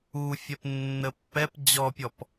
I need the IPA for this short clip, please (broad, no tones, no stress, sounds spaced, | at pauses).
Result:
u fʲ ɛ p nː ə pː ɛ p d͡ʑ ɔ pʲ ɔ p